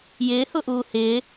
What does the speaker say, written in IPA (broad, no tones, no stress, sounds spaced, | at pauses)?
j ɪː h ʊ ʔ uː h ɪː